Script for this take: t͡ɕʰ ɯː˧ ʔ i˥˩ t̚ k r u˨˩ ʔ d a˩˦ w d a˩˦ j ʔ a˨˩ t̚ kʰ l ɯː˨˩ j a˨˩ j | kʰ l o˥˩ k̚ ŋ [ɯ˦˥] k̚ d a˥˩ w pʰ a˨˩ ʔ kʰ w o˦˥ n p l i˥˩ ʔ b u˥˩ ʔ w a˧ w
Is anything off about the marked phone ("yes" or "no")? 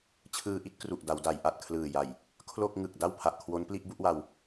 yes